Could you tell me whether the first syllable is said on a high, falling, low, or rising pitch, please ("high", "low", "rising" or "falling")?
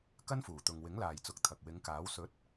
high